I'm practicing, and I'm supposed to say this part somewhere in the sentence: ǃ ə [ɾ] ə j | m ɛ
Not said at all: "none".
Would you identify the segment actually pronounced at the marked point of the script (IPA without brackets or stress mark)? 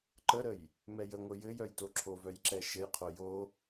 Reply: ɾ